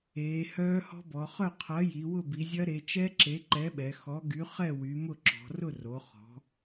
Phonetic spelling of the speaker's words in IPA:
eː˩˧ h œː˦˥ h ɔ̤˦˥ b ɔ˩˧ χ œ˥˨ qʰ ɐ˨˥ j i˩˧ w ʊ˥˨ b i˩˧ zʲ ɐ˦˥ ɾ e˩˧ t͡ʃ ɛ˦˥ ǁ e˨˥ ǃ ɛ˨˥ ɓ ɛ˩˧ x ɔ˨˥ ɡ y˨˥ χ ɛ˥˨ w y˩˧ m ʊ˥˨ ǁ ɔ̤˩˧ r ʊ˥˨ r o˩˧ χ ɔ̤˩˧

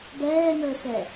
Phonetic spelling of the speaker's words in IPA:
b ɛː ŋ əː x ɛ

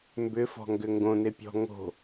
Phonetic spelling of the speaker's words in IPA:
m b ʏ f ɔ̤ ŋ ɡ ʏ ŋ ɡ õ n e pʲ ɔ̤ ŋ o̤

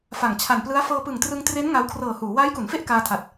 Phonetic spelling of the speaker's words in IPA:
f a˨˩ ŋ t͡ɕʰ a˨˩ n p l ɯ˦˥ a̯ f ɤː˧ p ɯ˨˩ ŋ t r ɯ˧ ŋ t r e˦˥ n ŋ a˧ w kʰ r ɤː˨˩ h uː˩˦ w aː˦˥ j k u˩˦ n f e˥˩ ʔ k aː˧ tʰ a˨˩ t̚

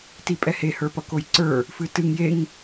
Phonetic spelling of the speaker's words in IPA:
t i pʼ ɛ h e h ə˞ p ʌ k o j ǀ ə˞ | f ɨ t ɨ ŋ j e ŋ

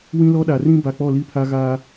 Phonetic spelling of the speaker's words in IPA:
w ĩ˦ l ɔ˦ ɗ a˨ r ĩ˦ b a˨ k͡p ɔ˦˨ l i˦ pʰ a˦ ɣ aː˦

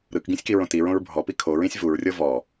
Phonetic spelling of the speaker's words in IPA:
ɾ ɯ k ɡ ĩ sʲ k i ɹ õ t i ɹ õ ɹ bʱ ɔ p i kʰ o ɹ ĩ sʲ v u ɹ rʲ ɤ v ɔ

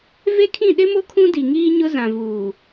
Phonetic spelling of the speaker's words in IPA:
v e˦ kʰ ĩ˦˨ ɗ ɪ˦ m o˦ kʰ ũ˦ d i˨ ŋ iː˦ ɲ ʊ˦ z ã˨ v uː˨

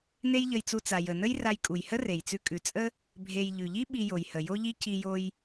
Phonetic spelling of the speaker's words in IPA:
n e˥ j ʎ ə˧ j t͡s u˧ t͡s a˩ j ə˩ n ə˥ j r a˧ j kʼ u˩ j h ə˥ r e˩ j t͡s ʉ˧ kʼ ʉ˩ t͡sʼ ə˥ | bʱ e˧ j ʎ ʉ˩ ʎ i˥ ɓ i˧ j o˩ j h ə˩ j o˥ ʎ i˥ c i˧ j o˧ j

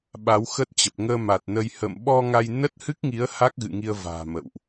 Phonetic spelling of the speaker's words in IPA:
ɓ a˨˦ w x ə˦˥ t̚ t͡ɕ ə˨˩ p̚ ŋ əː˧ m a˨˩ t̚ n ə˧ j h ə̰ː˧˨ m ɓ ɔ˧ ŋ a˧ j n ə˦˥ t̚ h ɨ˦˥ k̚ ŋ i˨˦ ə̯ h a˦˥ k̚ ɣ ɨ̰˧˨ ŋ i˧ ə̯ v a̤ː˨˩ m ə̰˧˨ w ʔ

